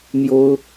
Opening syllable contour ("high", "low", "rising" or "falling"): high